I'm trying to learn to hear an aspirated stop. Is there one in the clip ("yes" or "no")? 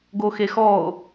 no